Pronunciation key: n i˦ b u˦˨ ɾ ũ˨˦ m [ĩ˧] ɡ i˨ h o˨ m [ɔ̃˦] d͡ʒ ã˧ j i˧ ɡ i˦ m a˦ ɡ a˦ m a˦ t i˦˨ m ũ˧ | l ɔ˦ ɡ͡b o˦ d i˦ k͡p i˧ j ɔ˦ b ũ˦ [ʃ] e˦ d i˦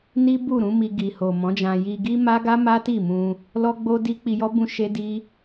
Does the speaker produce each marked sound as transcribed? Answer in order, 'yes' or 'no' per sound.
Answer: no, no, yes

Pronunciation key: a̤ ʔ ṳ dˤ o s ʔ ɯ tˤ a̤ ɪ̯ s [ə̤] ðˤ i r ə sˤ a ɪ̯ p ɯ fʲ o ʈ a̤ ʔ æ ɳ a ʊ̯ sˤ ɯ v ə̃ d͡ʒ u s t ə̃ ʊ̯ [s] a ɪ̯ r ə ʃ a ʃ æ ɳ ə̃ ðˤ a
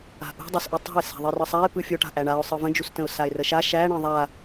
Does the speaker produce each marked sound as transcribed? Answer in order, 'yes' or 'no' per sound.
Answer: no, yes

